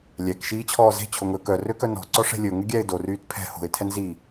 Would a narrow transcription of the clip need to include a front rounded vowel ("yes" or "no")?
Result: yes